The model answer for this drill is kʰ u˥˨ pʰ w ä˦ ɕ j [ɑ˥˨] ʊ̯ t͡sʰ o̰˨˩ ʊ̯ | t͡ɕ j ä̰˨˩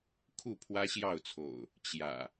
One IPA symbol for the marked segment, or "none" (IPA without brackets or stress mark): ɑ˥˨